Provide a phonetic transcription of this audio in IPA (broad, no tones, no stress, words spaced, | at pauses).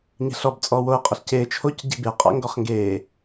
ɲe̤ɬɔb t͡sʼɔːwoə̯ qʼəɬceː t͡ʃʰoc ɟi̤be qʼa̰ŋɡɔχŋɡeː